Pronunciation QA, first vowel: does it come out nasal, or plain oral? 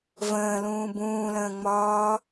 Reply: nasal